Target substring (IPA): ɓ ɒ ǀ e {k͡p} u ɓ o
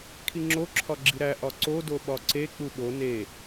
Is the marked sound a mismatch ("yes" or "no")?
no